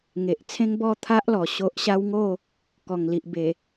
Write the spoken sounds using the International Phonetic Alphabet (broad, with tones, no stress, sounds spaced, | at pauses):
ŋ e˨ ʔ t͡sʰ ẽ˦ ŋ b ɔ˥˧ t̪ʰ a˦ ʔ l ɔ˨˩ ɕ o˦ ʔ ɕ a˦ w ŋ o˥˧ | k ɔ˨˩ ŋ l i˨ ʔ b e˨˩